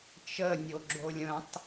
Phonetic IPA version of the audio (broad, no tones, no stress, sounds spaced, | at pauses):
t͡ʃ ə nʲ o ɡ͡ǁ o lʲ ə̃ tˤ